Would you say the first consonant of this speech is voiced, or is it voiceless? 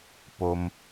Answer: voiceless